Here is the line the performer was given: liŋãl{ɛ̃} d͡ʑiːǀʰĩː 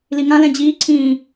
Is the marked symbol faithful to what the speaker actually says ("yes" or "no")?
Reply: yes